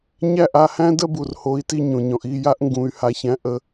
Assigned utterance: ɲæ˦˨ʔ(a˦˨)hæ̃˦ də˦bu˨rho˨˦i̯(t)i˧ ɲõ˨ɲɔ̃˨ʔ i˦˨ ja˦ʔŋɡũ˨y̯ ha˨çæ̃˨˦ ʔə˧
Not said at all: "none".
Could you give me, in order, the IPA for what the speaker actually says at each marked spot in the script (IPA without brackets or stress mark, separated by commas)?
a˦˨, t